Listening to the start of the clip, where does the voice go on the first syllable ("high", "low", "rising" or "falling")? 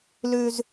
low